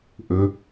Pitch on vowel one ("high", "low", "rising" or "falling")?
low